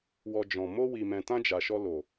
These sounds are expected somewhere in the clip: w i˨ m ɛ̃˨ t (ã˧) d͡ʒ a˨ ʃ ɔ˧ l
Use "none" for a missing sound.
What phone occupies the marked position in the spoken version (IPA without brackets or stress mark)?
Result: ã˧